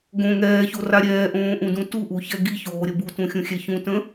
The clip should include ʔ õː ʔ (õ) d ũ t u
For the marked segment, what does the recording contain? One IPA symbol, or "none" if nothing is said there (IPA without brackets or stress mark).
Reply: ũ